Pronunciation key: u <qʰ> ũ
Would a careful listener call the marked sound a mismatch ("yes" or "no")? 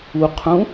no